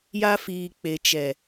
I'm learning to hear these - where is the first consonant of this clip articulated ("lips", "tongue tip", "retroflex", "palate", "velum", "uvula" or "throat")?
palate